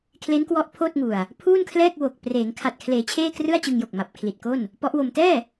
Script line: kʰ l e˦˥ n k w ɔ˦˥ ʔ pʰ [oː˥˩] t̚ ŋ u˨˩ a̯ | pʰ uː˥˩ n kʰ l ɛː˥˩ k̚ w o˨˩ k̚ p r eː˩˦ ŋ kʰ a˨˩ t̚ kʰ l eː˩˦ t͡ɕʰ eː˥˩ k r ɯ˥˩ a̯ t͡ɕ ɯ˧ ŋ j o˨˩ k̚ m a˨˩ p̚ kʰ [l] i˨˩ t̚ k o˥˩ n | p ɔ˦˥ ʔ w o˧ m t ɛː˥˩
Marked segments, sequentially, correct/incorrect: correct, correct

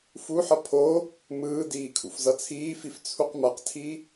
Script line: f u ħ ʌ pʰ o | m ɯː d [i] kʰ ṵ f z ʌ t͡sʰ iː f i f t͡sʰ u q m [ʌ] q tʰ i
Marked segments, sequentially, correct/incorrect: incorrect, correct

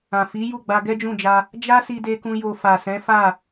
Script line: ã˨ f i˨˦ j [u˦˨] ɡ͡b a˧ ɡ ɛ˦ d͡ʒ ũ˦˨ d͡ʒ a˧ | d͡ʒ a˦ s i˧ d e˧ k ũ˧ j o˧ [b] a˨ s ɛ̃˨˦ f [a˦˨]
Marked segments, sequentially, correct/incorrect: correct, incorrect, correct

